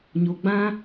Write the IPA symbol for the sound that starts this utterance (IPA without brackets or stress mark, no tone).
ɲ